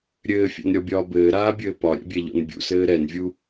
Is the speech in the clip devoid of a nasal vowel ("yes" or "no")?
yes